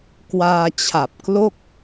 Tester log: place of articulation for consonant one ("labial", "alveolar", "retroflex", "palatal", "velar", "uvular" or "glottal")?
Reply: velar